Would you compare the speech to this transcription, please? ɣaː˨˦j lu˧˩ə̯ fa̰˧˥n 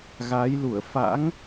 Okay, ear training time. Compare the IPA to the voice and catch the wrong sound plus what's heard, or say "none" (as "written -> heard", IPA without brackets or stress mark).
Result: n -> ŋ